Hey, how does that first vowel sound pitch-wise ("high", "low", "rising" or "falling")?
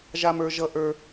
high